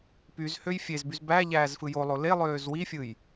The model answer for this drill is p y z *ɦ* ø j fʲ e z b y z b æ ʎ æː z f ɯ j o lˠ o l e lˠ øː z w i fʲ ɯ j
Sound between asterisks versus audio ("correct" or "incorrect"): incorrect